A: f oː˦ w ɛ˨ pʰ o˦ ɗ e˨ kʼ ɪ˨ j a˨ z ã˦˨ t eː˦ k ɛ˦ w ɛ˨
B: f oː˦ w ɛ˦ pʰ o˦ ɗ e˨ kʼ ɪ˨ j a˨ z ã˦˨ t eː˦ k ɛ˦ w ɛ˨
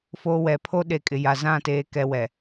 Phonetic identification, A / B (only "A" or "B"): A